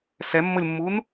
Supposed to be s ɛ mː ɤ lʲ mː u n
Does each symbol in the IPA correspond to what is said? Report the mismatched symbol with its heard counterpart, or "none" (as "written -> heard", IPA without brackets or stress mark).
none